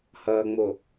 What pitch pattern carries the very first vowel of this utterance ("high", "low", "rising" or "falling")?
low